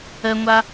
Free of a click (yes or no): yes